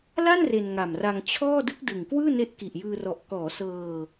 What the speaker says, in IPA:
l a˥˩ n r e˧ n ŋ a˨˩ m r a˧ ŋ t͡ɕʰ ɔː˥˩ d ɯ˦˥ k̚ d ɯ˨˩ ŋ k w ɯː˥˩ n e˦˥ ʔ k i˨˩ ʔ j ɯː˧ r ɔ˨˩ ʔ k ɔː˩˦ s ɤː˧

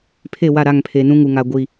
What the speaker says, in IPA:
pʰ e˦˨ w a˦˨ ɾ aː˦˨ ŋ pʰ e˨ n ũ˦ ŋ u˨ ŋ a˨ ɡʷ i˨

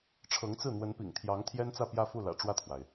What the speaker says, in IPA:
ʈ͡ʂʰ ɤ˧˥ ŋ t͡s ɹ̩˥˩ n̪ w ə˧˥ n p ḭ˨˩ ŋ t̪ʰ j ɑ˧˥ ŋ t̪ʰ j ɛ˥ n t͡s ä˥˧ p j ä˥˧ f u˥˩ l ä̰˨˩ ʈ͡ʂ w ä˥˩ t̪ʰ w a˩ ɪ̯

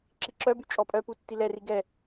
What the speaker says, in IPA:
ǁ i ǁ œ b y t͡ʃʼ ɔ pʼ œ p u tː i l ɛ r i ɡ ɛ

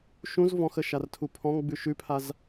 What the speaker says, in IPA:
ʃ ũ z v ɔ̃ x ə ʃ a r tʰ u pʰ ɔ̃ ŋ ɡ͡b ʉ ʃ ʉ pʰ a z

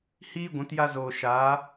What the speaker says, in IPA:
h iː˦ ɡʷ ũ˨˦ t j a˧ z oː˨ ʃ aː˨˦

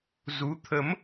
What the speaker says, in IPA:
z u˨˦ t̪ʰ ə˨˦ m

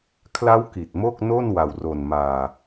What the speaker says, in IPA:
kʰ l a˦˥ w k i˨˩ t̚ m o˥˩ k̚ n o˥˩ n w a˨˩ w r o˨˩ n m aː˨˩

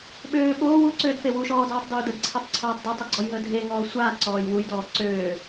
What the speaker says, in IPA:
ɓ øː ɓ oː w u ǀ øː d f e w u ʃ ɔː d ɔː tˤ d oː d ə d ǀʰ e tˤ ǀʰ ɔː tˤ d o tˤ ə ɡ͡ǀ ɔ j ɦ əː dʱ e ŋ ɔː sʷ a ǀ ɔː j w u j d ɔː ǀ øː

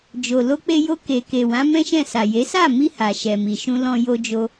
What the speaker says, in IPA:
d͡ʒ o˨ l o˧ k͡p e˦ j o˧ k e˨ k e˨ w ã˨˦ m ɛ̃˦ ʃ ɛ̃˦˨ s a˨ j e˨˦ s a˦˨ m i˧ h a˨ ʃ ɛ˨ m i˨ ʃ ũ˧ l ɔ̃˦ j o˦ d͡ʒ o˦

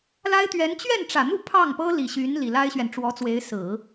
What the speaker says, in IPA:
l a˥ ɪ̯ t̪ ɥ ɛ˧˥ n t͡ɕ ɥ ɛ˥˩ n ʈ͡ʂ ä˨˩ n̪ u˥˧ pʰ ɑ˥˩ ŋ p ɤ˥ l i˨˩ ɕ y˧˥ n l i˨˩ l a˥ ɪ̯ ɕ ɥ ɛ˨ n ʈ͡ʂ w ɔ˧˥ t͡s w e˧˥ ɪ̯ s ɹ̩˨˩˦

